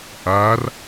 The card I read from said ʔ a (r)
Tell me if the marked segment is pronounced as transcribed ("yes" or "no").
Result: yes